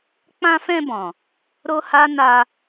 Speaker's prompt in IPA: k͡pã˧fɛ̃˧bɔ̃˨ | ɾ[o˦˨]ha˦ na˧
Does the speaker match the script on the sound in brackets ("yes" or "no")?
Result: no